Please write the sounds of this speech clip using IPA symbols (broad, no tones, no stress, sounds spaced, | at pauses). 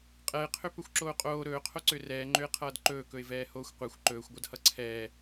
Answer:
qʼ ɛ ɪ̯ qʰ ø p ɵ xʷ ǁ oː qʼ oː ɾ ɵː qʰ o ǀ ø r ɛː ŋ͡ǃ ø ɪ̯ qʰ ʌː d ǃ ɵː k ɵ ɪ̯ v ɛː h oː xʷ qʷ ɛ xʷ ǃ ɵː xʷ ɡʷ ʌ d h ʌ ǀʰ ɛː